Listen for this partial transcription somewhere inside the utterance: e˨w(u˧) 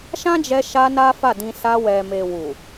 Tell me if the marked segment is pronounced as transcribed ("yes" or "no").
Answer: no